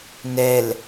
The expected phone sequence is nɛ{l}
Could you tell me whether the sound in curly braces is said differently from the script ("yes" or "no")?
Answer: no